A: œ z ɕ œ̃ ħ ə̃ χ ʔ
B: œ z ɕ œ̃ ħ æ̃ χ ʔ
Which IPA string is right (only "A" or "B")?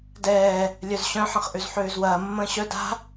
A